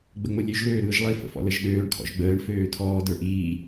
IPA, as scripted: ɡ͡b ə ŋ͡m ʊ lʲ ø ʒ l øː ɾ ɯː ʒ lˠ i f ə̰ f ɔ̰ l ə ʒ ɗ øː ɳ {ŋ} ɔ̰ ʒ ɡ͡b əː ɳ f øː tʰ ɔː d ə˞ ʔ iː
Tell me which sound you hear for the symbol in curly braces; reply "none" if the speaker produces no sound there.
kʰ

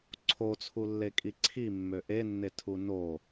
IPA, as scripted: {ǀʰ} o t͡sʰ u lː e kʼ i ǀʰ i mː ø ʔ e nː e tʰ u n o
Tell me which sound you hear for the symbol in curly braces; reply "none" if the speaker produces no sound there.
ǀʰ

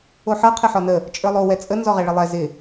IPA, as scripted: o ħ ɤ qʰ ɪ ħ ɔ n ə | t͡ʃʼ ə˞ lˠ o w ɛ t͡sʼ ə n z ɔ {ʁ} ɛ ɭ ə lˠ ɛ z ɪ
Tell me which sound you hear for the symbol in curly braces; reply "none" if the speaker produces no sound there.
ʁ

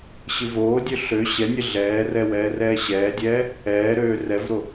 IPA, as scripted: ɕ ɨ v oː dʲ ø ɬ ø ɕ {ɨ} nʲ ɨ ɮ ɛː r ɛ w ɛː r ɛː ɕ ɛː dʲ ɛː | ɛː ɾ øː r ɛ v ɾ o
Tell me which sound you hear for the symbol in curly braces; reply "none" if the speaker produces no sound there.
ɛ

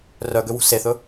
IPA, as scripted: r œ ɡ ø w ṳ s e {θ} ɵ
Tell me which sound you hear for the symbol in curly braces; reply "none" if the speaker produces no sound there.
θ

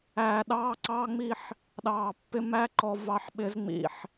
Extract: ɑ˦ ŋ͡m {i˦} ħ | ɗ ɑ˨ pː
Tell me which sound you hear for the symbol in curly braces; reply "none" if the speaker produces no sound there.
i˦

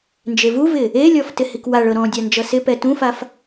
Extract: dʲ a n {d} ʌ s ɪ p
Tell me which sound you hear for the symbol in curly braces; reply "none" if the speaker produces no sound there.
d͡ʒ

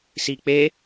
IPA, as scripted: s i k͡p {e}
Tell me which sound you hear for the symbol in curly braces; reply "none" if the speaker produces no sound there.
e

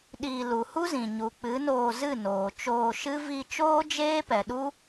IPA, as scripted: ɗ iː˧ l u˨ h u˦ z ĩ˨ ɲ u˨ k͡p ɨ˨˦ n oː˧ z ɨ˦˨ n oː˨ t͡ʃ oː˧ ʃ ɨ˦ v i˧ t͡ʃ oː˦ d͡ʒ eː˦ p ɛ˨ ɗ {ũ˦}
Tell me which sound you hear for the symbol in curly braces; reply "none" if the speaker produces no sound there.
u˦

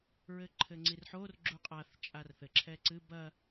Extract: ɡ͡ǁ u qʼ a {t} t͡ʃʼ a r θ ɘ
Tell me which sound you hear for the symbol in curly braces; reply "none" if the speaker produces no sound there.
θ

